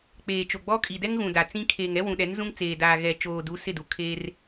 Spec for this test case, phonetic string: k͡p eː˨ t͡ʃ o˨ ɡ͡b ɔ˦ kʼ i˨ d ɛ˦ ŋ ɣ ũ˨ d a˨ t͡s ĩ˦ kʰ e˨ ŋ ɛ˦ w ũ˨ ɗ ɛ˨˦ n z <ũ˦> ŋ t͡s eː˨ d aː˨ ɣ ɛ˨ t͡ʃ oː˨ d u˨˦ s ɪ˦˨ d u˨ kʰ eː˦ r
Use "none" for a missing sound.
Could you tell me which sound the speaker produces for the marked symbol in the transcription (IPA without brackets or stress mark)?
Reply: ũ˦